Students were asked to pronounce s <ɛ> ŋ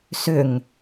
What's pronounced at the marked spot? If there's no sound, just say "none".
ʏ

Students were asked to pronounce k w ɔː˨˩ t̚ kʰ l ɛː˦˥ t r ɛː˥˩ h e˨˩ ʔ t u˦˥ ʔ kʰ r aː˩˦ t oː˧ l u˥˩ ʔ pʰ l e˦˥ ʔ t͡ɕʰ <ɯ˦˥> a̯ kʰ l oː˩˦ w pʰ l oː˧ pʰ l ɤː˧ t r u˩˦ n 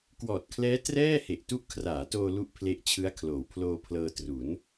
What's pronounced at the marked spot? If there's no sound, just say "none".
ɯ˦˥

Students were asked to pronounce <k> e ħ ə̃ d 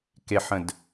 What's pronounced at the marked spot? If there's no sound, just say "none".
k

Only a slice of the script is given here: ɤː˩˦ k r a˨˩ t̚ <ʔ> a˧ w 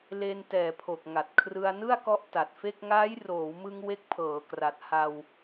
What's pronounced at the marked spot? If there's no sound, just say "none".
h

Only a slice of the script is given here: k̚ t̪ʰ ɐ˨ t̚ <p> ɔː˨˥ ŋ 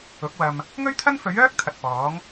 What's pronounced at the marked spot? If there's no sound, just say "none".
p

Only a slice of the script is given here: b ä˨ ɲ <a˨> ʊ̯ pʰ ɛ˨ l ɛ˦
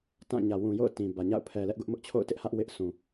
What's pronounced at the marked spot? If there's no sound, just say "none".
a̰˦˨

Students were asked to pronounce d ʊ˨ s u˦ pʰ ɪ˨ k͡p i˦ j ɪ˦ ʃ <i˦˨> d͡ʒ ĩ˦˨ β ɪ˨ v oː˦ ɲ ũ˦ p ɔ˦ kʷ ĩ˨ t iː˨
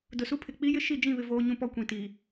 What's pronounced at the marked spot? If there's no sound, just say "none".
i˦˨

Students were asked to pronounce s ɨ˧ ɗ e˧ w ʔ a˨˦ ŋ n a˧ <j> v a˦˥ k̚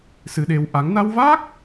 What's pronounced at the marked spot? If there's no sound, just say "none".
w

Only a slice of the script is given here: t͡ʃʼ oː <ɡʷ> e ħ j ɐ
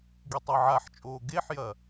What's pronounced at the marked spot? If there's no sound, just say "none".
ɡ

